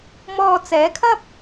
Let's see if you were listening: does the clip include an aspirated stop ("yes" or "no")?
yes